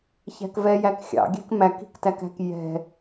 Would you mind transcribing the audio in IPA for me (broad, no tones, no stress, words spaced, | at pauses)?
çæ̤kvɛjæk xʲɑ̰ɡʲɛ̤k mæki̤ktækæ̤k jɛ̤